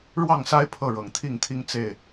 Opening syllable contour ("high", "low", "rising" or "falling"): falling